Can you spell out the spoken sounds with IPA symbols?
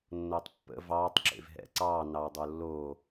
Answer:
nː o tˤ pː ə̰ v ɑː tˤ ǁ ḛ v ɦ ɛ̰ ǀ ɑː n ɑ w dˤ o lː o

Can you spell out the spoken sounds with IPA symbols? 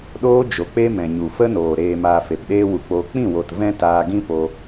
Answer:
ɗ oː˦ d͡ʒ o˨ k͡p e˦ m ɛ̃˨ ɲ u˨ f ə˦ n oː˨ ɾ eː˨ m aː˨ f e˨ p ɗ eː˦ w u˧ k͡p oː˧ k͡p ĩ˦˨ w o˨ t v ɛ̃˦ t aː˧ ɡ ĩ˦ p o˧

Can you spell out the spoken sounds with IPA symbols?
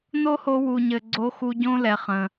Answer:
n o˦ h o˧ w u˨ ɲ ɘ˨ ɡ͡ǀ o˧ x u˧ ɟ õ˦ l ɛ˨ χ ə̃˨

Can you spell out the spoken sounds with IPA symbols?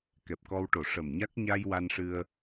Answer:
k ɛ˨˩ p̚ k ɔ˧ w ʈ o˨˩ ʂ ə˨˩ m ɲ a˦˥ k̚ ɲ a˧ j w a˧ n ʂ ɨ˧ ə̯

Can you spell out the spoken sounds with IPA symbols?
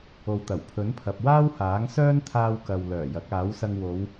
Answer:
o˨ w t̪ ɐ˨˩ w pʰ ɵ˨˥ n pʰ ɐ˨ p̚ w aː˥ w h aː˨˥ ŋ s œː˥ n t̪ʰ aː˧ w k ɐ˨ w l œː˨˩ j ɐ˨˥ k̚ aː˨˥ w s ɐ˧ ŋ w o˨˧ w

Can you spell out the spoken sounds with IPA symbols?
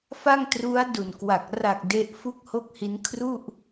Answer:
f a˥˩ ŋ t r u˦˥ a̯ d u˨˩ n k w a˨˩ k̚ r a˨˩ k̚ d e˦˥ ʔ f u˥˩ k̚ h o˥˩ k̚ h i˦˥ n kʰ r u˥˩ ʔ

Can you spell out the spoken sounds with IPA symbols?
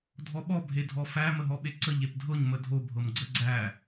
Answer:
dʱ ɔ ɓ ɔ bʱ e dʱ ɔ f æ m ə ɦ ɔ ɓ e ǀ ə ʎ e p dʱ ɤ ɲ m ə dʱ o bʱ ɤ m ɡ͡ǀ ə ɡ͡ǀ æ

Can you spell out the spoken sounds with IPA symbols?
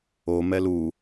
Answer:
o m ɛ l u

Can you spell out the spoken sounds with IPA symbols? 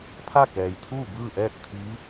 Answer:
pʰ a˥˨ k ɛː˩ j t̪ʰ uː˥˨ b ɯː˥˨ ʔ ɛː˥˨ t̚ t̪ʰ iː˧˥

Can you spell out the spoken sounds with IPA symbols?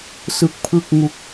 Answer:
s ɯ˦˥ k̚ pʰ ɯ˥˩ k̚ ŋ u˦˥ k̚

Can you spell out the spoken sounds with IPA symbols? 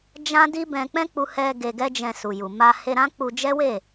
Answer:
d͡ʒ ã˦ d i˦ b ɛ̃˧ k͡p ɛ̃˦ k͡p u˧ h ɛ˧ ɡ e˧ ɡ ɛ˦ d͡ʒ ɛ̃˧ s u˨ j u˨ m a˧ h e˧ ɾ ã˦ k͡p u˧ d͡ʒ ɛ˦ w e˦˨

